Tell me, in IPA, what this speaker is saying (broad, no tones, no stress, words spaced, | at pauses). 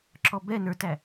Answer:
ǁɔbɛ nə˞tæ